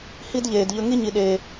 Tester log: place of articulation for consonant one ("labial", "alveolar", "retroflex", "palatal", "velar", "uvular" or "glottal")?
glottal